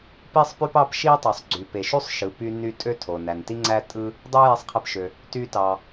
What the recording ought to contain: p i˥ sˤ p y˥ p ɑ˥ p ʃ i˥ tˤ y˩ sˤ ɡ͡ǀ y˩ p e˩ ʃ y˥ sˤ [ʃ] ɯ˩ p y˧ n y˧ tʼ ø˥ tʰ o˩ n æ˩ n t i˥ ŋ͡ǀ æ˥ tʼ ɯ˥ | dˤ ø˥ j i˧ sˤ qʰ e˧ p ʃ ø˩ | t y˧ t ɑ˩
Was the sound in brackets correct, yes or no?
yes